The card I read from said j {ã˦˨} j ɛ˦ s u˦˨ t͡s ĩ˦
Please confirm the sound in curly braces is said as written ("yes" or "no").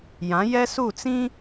no